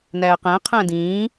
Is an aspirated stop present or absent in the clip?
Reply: present